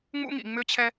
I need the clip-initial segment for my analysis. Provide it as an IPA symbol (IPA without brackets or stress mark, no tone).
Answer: ŋ͡m